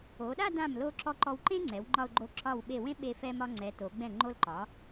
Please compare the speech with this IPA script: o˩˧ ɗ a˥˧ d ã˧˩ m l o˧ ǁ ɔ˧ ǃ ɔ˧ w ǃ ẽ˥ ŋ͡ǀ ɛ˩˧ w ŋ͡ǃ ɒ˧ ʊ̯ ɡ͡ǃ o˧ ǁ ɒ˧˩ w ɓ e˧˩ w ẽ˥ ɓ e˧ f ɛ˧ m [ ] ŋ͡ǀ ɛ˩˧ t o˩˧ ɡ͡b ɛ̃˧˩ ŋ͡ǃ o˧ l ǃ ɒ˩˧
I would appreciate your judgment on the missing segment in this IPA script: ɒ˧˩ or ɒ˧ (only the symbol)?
ɒ˧